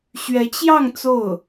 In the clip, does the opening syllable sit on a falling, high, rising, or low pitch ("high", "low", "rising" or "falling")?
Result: rising